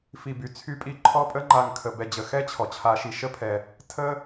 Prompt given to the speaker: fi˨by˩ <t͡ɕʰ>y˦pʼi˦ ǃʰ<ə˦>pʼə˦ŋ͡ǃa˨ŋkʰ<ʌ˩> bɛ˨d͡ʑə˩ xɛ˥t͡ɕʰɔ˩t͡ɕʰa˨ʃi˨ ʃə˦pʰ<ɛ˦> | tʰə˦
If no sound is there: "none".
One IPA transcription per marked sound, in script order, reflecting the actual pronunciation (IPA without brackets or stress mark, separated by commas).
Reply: t͡sʰ, ɔ˦, ə˩, ɛ˩